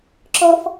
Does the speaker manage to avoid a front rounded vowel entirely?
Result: yes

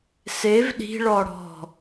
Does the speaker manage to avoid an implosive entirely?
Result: no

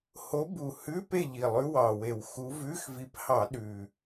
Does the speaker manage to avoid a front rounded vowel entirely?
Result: yes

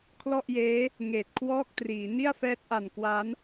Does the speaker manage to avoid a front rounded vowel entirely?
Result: yes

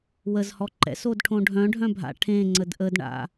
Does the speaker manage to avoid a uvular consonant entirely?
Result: yes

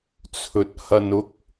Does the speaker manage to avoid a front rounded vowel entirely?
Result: yes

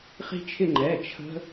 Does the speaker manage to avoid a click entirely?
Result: no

